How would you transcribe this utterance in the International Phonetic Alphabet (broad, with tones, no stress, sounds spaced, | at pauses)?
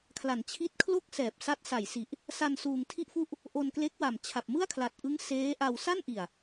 kʰ l a˩˦ n t͡ɕʰ i˦˥ t̚ kʰ l o˥˩ k̚ s ɛː˨˩ p̚ s a˦˥ t̚ s a˨˩ j s i˨˩ ʔ | s a˧ n s uː˧ ŋ tʰ i˥˩ ʔ f u˥˩ ʔ | ʔ o˧ n k l e˦˥ k̚ w a˨˩ m t͡ɕʰ a˨˩ p̚ m ɯ˥˩ a̯ kʰ l a˨˩ t̚ ʔ ɯ˦˥ ŋ s eː˦˥ ʔ a˧ w s a˥˩ n ʔ i˨˩ a̯